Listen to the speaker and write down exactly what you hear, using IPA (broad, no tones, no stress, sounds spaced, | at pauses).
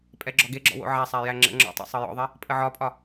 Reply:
pʼ ɛ ɡ͡ǁ ɔ ɡ e ɡ͡ǁ ɔ̰ w o̰ ʕ æ sˤ æ j æ ŋ͡ǁ ə̰ ŋ͡ǁ ɔ̰ tˤ o̰ sˤ ɤ j ɔ̰ ðˤ e | pʼ ə ʕ ɒ pʼ ɒ